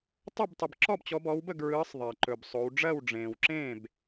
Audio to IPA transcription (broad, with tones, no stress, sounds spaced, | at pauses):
tˤ ɵ˥˨ b tˤ ə˨ b ǁ ɔ˥˨ b t͡ɕ ɔ˨˦ b ɔ˨˦ w b ə˥˨ ɡ ɹ ɯː˨˦ sˤ ðˤ ɜ˨ ǃ ɵ˨ b sˤ o˨˦ w ɖ͡ʐ ɜ˥˨ w ɖ͡ʐ ẽː˨ w ǁ ẽː˥˨ b